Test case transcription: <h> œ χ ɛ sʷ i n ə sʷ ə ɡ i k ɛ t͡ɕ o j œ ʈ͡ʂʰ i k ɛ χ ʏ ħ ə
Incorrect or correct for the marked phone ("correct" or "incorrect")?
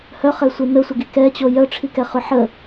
correct